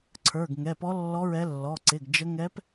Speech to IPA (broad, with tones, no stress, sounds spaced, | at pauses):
ǀʰ ə˞˩˧˩ ɡ ŋ ɛ˩˧˩ p ɔ˧˥ lː ɔ˧˥ ɹ ɛ˧˥ lː ɔ˩˧˩ ǀ ɪ˩˧˩ ɡ d͡ʒ ə˧˥ ŋ ɛ˧˥ p